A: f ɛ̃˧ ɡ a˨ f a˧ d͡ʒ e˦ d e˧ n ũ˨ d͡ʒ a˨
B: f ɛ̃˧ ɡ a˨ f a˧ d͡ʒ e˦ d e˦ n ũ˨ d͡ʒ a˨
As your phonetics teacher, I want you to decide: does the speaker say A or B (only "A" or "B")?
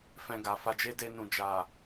A